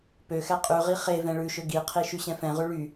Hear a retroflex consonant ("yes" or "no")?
yes